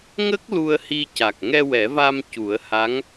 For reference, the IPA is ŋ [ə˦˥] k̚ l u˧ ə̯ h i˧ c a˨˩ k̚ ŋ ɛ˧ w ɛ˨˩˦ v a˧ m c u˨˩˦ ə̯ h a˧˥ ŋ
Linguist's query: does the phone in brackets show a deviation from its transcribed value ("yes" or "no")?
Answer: no